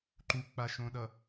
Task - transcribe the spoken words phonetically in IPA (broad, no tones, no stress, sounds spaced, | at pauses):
ǃ u k͡p a ʃ õ ɗ ʌ